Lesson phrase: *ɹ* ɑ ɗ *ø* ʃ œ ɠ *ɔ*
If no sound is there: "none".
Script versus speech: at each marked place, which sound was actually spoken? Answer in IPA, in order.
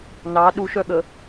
n, u, ə

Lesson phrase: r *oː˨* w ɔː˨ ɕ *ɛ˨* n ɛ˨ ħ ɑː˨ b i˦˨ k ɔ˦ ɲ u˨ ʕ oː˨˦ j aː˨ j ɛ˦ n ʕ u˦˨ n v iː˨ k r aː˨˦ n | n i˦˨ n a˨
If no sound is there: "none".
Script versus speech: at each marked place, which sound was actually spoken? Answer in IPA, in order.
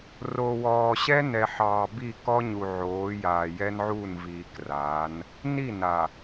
o˨, ɛ˦

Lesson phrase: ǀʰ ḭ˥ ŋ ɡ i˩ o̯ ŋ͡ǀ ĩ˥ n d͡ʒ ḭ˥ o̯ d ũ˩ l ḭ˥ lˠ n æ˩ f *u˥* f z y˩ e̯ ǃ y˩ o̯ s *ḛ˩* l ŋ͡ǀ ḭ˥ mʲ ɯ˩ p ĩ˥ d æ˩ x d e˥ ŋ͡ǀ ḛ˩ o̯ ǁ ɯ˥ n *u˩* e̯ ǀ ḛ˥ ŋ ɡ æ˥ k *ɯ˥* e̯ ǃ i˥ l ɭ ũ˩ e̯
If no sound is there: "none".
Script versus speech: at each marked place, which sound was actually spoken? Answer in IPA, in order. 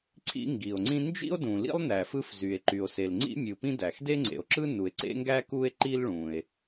ɯ˥, e˩, u˩, u˥

